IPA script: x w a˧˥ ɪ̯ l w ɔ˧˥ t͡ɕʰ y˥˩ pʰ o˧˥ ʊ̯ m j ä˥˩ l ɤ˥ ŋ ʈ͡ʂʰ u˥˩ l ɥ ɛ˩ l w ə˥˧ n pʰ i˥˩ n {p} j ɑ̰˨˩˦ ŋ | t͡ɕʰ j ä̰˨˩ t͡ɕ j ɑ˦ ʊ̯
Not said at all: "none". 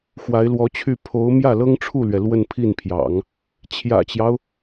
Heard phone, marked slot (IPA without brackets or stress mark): pʰ